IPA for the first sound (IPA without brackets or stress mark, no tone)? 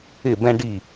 ɪ